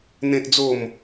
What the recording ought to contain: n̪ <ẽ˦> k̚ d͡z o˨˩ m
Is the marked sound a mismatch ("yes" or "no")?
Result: yes